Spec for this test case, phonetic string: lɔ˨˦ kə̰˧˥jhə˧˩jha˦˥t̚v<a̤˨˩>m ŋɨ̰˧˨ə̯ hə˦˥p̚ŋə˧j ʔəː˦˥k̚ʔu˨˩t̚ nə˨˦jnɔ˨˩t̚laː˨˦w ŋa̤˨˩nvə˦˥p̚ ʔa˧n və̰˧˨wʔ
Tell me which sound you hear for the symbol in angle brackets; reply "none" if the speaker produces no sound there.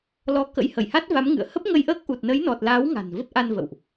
a˨˦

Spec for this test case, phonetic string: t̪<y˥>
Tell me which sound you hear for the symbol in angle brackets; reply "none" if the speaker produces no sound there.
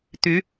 y˧˥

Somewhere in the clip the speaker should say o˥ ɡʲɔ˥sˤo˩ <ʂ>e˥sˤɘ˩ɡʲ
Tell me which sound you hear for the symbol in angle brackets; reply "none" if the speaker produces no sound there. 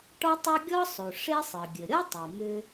ʂ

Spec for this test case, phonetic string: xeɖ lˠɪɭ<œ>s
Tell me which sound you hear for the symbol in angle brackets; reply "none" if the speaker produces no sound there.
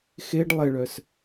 œ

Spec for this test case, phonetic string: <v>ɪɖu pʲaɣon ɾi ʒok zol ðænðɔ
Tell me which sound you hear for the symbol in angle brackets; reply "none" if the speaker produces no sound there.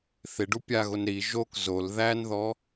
θ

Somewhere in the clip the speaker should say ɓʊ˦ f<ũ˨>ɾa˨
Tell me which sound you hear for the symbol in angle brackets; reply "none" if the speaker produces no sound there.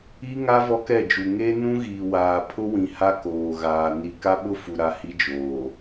u˨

